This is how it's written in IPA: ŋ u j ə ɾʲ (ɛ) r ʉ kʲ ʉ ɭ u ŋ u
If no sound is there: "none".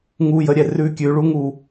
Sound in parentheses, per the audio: ɛ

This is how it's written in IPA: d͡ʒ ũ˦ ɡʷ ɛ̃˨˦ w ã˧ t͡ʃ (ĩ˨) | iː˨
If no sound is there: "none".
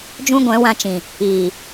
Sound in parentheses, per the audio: ĩ˨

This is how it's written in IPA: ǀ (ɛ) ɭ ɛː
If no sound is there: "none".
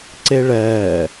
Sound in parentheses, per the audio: e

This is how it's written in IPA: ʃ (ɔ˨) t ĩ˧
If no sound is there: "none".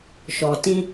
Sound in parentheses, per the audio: ɔ˨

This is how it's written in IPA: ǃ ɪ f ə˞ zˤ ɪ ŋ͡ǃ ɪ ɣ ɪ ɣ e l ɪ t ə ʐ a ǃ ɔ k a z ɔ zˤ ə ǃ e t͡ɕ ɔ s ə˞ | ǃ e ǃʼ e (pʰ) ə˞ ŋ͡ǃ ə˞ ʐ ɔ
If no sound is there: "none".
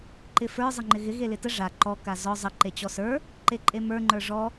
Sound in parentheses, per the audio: m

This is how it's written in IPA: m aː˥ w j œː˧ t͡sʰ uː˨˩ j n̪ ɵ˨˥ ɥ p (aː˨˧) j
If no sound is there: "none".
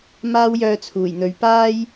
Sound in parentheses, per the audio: aː˥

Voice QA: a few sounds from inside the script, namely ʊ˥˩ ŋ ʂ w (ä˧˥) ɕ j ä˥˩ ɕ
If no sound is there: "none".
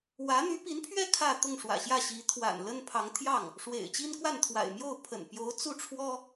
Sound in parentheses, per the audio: ä̰˨˩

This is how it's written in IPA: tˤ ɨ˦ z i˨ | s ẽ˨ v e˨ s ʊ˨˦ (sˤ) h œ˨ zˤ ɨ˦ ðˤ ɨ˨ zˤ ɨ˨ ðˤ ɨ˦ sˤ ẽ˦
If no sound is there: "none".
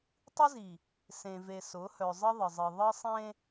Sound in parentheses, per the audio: none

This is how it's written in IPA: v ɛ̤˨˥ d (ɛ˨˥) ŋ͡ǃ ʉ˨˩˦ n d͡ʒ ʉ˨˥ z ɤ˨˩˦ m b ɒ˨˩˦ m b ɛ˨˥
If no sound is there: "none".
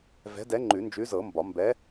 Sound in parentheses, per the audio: ɛ˨˥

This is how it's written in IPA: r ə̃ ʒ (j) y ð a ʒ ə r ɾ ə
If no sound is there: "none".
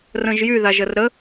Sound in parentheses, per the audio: j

